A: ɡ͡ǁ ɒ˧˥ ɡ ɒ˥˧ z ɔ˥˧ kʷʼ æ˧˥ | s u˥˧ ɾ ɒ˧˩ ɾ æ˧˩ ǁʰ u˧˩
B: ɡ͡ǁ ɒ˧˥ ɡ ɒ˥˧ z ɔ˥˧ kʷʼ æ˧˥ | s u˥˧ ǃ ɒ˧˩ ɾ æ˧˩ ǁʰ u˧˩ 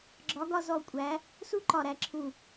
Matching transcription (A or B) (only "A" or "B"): B